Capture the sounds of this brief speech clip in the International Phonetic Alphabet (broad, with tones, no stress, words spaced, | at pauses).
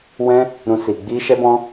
wɛ̃˦ | ɾũ˦si˧ ɡ͡bi˦ ʃɛ˦bɔ̃˦